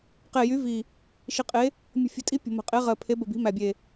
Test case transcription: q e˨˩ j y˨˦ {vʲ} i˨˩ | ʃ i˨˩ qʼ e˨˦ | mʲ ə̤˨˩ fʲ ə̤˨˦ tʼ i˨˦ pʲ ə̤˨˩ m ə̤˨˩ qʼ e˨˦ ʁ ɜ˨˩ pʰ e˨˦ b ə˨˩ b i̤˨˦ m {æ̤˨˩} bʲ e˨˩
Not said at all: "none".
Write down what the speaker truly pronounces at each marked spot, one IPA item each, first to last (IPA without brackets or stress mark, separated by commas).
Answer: v, æ˨˩